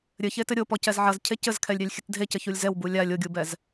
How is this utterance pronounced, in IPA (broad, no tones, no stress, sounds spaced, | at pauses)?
ɾʲ ɘ ç e t ɘ ɾʲ o p ɔ c ɛ z ʕ ɐ z cʰ e c ɘ z kʰ ɛ lʲ ɾʲ a lʲ xʲ ɨ t dʱ e c ɘ ç u lʲ z ɛ w b u lʲ a lʲ o ɡʲ u b ɛ z